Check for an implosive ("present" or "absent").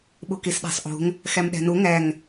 present